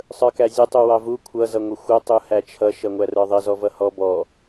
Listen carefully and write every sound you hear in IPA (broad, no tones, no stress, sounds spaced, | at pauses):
sˤ ə˞ k æ zʲ ə tˤ u w ɑ v u kʷʰ ʌ z ʌ ŋʷ ɪ xʷ ʌ tˤ u h æ t͡ʃʰ ʌ ʃ ʌ ŋʷ æ r ə˞ ðˤ ɪ z ɔ v ʌ h ɔ b ɔ